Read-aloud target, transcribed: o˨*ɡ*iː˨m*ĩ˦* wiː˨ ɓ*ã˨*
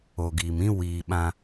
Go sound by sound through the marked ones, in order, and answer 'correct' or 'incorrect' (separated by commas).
correct, correct, incorrect